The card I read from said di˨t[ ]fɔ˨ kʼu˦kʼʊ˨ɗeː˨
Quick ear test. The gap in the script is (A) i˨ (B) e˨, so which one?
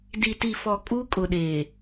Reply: A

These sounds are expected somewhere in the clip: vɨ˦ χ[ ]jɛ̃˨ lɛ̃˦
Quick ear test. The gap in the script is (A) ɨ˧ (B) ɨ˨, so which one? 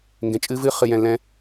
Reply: B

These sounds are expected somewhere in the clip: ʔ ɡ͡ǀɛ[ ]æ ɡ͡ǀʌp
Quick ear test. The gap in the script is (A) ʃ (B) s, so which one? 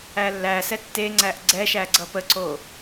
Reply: A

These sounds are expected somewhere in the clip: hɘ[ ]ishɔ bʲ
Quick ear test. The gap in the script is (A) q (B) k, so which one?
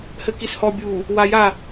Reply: B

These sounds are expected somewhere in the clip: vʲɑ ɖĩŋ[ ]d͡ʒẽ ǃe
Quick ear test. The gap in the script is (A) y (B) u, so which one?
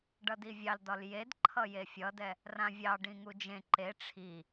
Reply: B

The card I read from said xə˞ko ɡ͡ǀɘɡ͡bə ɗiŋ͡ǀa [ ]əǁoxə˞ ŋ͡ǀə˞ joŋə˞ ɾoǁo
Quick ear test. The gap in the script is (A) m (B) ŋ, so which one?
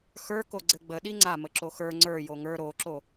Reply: A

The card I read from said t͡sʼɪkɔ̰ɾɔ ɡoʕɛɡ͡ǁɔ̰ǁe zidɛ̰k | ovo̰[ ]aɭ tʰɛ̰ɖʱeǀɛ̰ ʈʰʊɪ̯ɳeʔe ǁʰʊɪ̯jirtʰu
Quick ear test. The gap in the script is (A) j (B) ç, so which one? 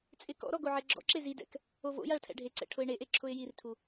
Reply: A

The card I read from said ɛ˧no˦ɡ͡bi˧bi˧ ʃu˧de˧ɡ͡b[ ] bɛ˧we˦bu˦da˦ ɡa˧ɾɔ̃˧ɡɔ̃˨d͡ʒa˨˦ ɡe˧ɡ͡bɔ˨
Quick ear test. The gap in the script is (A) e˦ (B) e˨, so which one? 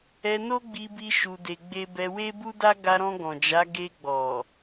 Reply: A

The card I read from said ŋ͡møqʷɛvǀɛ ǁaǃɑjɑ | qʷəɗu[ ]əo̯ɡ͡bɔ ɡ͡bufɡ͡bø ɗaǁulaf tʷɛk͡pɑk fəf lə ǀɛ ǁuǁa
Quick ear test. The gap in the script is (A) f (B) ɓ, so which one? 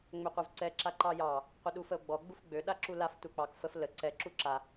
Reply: A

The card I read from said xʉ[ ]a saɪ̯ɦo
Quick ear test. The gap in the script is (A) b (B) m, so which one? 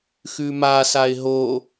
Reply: B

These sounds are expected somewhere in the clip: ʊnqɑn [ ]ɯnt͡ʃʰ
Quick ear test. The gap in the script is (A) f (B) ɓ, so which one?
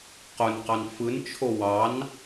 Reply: A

